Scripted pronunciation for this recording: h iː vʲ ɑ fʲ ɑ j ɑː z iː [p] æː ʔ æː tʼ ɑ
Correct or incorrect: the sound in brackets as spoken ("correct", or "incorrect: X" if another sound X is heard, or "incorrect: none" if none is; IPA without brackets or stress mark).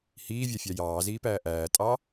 correct